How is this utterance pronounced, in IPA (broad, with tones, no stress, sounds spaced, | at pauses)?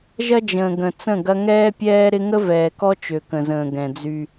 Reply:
ʒ ɐ˦ d͡ʒ ə̃ː˨ ɡ ə̃˨ t͡s ə̃˦˨ ɡ ɐ˦ ŋ ɛː˦ pʲ ɛː˦ ɾ ɪ˦ ŋ ə˦ v ɛː˨ k ɔ˦ t͡ʃ ø˨ k ə̃˨ z ə̃ː˨ ɡ ɛ̃˨ d͡z y˦